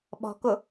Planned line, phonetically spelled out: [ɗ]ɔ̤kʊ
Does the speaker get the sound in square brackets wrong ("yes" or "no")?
yes